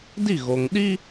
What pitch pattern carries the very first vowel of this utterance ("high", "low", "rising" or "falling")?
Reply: falling